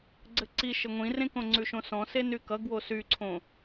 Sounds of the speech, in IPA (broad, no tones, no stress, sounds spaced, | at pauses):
ɡ͡ǀ ɘ ǀ i ʃ ɘ ŋʷ ĩ r ẽ k õ ŋ͡ǀ ʉ ʃ õ s ɔ̃ s e n y k ʌ ɡ w o s y ǀʰ õ